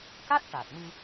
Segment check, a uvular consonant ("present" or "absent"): absent